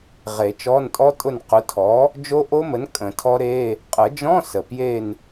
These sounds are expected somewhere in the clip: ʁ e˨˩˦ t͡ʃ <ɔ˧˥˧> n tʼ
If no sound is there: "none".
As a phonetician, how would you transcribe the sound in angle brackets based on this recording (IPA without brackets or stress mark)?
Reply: ɔ˧˥˧